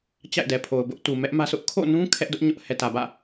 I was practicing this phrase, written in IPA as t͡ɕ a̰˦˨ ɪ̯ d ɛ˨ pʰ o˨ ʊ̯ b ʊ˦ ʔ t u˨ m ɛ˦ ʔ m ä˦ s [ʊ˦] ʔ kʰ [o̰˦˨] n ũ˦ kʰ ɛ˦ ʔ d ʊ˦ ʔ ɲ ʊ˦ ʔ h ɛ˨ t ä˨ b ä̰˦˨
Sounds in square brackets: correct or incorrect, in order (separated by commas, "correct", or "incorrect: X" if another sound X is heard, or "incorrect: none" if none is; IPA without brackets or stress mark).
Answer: correct, correct